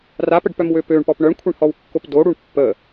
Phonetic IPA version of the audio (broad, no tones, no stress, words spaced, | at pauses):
rapəɖpœmwø pøɳpɔp ɳœɳkʷʰɛɳhɔwkːop doɽuɳ pːə